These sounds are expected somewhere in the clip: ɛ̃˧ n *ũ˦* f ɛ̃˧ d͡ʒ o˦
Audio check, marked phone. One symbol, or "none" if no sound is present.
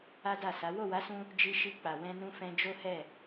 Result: ũ˧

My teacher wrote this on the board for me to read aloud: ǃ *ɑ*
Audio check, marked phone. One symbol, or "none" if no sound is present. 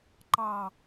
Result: ɑ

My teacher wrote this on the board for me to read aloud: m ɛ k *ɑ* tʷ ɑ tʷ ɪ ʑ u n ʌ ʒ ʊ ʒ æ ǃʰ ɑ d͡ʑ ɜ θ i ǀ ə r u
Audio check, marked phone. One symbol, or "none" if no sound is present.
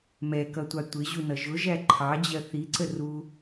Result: ʌ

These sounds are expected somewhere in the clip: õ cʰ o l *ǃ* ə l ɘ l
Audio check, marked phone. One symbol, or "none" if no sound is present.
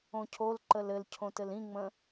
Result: ǃ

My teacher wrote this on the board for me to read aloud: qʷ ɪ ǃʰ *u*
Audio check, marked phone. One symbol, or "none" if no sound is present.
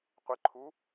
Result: u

